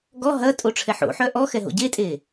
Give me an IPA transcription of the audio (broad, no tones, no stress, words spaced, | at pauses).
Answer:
ɡɔ ɦɐtʼo ʈ͡ʂʰɛħo̰ħœ ʔɔxɛ ɦo̰ɟetʼe